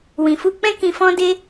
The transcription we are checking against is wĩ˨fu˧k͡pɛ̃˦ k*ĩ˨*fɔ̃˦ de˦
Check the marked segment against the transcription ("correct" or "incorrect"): incorrect